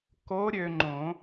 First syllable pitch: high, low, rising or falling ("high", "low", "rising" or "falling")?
rising